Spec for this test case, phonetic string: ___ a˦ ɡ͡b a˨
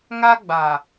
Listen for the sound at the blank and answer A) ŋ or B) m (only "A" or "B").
A